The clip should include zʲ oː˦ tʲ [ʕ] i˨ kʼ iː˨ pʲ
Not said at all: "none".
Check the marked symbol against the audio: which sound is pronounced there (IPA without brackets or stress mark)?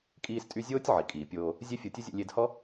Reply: ʕ